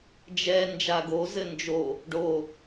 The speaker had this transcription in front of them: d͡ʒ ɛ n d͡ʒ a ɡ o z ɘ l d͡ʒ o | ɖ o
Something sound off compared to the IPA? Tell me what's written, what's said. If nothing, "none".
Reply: l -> n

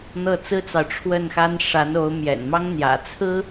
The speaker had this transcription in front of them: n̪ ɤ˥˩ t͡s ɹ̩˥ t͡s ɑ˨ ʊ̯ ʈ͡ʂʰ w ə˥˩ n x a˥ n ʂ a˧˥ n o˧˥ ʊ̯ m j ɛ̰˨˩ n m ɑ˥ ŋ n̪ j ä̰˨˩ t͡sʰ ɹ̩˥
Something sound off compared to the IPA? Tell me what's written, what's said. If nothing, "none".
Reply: none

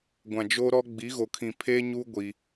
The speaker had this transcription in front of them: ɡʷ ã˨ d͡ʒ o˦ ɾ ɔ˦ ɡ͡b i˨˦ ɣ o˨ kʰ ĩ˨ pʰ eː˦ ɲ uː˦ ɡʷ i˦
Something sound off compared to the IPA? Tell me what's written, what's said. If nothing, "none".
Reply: none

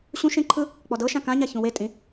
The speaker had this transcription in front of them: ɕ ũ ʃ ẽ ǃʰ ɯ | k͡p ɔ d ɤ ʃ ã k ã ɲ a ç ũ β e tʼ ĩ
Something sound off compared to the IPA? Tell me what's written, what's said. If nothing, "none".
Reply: β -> w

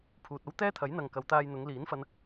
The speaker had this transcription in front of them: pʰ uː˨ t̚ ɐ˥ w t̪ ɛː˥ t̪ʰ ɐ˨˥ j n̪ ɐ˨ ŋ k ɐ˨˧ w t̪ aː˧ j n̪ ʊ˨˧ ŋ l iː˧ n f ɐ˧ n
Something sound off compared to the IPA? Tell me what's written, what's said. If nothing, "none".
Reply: iː˧ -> iː˨˥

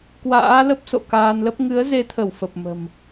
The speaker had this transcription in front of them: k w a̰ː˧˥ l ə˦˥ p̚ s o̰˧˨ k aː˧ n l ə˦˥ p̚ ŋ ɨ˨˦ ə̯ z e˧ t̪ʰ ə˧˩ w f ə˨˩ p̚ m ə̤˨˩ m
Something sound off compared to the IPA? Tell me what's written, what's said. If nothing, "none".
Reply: none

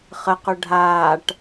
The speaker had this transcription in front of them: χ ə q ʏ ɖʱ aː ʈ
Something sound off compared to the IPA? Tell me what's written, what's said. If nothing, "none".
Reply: none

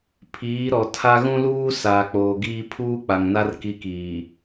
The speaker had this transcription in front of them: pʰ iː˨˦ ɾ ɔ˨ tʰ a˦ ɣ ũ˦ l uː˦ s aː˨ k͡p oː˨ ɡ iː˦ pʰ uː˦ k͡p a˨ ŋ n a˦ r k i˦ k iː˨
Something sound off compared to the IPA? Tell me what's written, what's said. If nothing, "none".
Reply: none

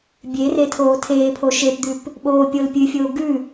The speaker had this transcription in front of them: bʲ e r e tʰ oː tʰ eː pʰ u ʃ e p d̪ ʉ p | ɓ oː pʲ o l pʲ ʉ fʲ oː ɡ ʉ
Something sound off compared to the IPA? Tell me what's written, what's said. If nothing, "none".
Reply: u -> o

